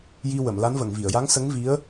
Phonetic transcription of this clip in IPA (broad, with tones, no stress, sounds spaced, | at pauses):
j i˧ w ə˨˩˨ m l a˧˥ n v ə˨˩˨ ŋ v i˨˩˨ ə̯ j a˧˥ ŋ s ə˧˥ ŋ v i˧˥ ə̯